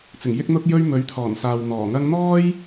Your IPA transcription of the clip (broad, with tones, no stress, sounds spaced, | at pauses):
t͡s ɪ˨˩ ŋ j ɪ˥ k̚ n̪ ʊ˥ k̚ j ɵ˥ ɥ m ɵ˨˥ ɥ t̪ʰ ɔː˨˩ n s aː˨ w n̪ ɔː˨˩ ŋ ɐ˥ ŋ n̪ ɔː˥ j